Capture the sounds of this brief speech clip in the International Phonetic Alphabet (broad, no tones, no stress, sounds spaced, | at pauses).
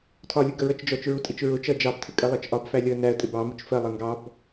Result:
tʰ ɒ lʲ ʊ ɡ ə ɹ ʌ t͡ʃ d͡ʒ ɔ t͡ʃ ɹ u tʼ i t͡ʃ ɹ ʊ t͡ʃ ʌ d͡ʒ ɑ b tʰ ɪ kʼ ɜ lˠ ɜ t͡ʃ ʔ ɒ b f æ lʲ ɔ ə̯ n æ ə̯ tʼ ɪ b ɑ m ʊ t͡ʃ f ɜ lˠ ʌ ŋ ɡ ɑ b